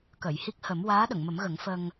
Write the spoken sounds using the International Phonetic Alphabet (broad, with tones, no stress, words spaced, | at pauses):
kə˨˩˨jhi˦˥k̚hə˨˩˦m waː˧˥ɗə˨˩˨ŋmə˨˩˦mɣə˨˩˦ŋ fə˧ŋ